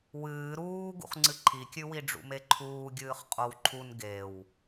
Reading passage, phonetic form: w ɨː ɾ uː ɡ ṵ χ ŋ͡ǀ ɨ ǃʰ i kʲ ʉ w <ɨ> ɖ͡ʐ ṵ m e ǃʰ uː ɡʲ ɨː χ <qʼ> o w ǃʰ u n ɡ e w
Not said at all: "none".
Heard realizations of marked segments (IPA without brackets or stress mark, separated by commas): i, qʼ